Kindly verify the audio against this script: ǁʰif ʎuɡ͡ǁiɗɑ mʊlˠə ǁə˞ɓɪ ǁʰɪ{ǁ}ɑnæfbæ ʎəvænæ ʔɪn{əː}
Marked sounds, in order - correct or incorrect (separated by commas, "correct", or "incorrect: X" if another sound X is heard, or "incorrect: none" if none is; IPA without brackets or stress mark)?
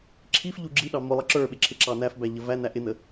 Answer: correct, incorrect: ə